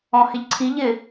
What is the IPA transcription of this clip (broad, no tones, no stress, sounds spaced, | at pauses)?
ɔ̃ h ɪ ʎ ǀʰ i ʎ ɪ